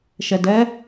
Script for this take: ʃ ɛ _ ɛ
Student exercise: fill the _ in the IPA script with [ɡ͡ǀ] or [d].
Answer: d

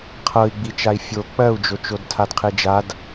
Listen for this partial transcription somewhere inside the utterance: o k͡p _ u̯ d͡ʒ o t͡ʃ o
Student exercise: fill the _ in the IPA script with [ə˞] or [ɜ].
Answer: ɜ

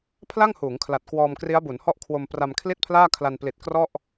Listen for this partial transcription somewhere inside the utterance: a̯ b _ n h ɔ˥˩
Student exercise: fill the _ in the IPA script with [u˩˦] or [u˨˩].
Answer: u˩˦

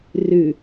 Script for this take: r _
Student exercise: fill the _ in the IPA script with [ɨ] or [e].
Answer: ɨ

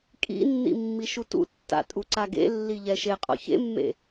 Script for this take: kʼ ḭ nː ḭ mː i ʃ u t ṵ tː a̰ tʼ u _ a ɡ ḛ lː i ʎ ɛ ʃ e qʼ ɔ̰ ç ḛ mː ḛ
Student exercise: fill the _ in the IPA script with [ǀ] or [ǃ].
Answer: ǀ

